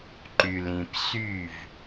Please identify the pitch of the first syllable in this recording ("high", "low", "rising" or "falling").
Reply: low